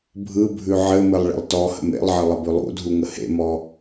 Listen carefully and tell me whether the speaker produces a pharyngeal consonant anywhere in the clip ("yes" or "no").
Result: yes